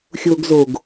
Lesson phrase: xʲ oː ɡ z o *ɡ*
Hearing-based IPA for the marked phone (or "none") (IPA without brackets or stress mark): ɡ